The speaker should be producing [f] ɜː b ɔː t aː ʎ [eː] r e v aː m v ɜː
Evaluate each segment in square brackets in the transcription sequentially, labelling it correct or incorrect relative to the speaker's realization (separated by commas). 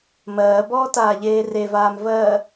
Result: incorrect, correct